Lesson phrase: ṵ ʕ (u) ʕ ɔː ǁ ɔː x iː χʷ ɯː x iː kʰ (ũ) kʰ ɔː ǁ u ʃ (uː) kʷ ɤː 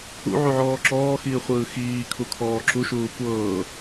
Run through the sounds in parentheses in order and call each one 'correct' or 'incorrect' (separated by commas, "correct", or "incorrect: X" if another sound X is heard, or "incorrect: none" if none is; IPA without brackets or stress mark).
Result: correct, incorrect: u, correct